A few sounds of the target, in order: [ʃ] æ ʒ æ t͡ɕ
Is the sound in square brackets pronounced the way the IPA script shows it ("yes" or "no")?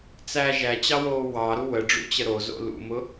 no